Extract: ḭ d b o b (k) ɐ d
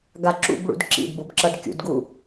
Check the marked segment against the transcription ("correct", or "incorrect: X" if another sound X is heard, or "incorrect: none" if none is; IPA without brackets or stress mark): incorrect: ǁ